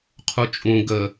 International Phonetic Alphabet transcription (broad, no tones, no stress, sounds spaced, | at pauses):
qʰ u t͡ʃʼ ũ ɡ ə